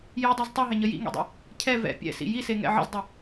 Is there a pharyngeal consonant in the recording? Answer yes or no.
yes